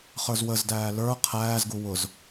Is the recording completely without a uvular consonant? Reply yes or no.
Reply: no